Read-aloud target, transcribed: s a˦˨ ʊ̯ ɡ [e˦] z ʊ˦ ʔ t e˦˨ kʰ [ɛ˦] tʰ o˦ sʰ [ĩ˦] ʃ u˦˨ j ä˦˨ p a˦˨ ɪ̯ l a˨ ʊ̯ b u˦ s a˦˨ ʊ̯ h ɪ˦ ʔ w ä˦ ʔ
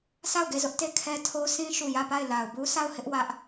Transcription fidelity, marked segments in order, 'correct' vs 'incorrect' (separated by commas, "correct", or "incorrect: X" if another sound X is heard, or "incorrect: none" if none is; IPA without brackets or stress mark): incorrect: e˦˨, correct, correct